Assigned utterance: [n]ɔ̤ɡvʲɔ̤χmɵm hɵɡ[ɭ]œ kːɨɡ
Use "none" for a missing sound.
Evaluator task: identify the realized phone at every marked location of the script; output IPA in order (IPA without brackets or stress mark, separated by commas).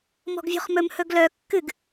m, l